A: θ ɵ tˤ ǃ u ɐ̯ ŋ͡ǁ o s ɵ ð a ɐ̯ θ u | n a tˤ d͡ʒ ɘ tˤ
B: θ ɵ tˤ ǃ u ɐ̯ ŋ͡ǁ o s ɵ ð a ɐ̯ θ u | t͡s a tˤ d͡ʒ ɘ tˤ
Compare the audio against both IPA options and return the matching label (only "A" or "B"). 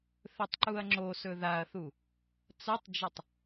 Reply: B